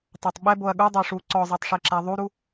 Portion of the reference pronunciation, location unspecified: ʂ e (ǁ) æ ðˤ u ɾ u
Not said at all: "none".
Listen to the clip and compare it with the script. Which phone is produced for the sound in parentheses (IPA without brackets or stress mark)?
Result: ǁ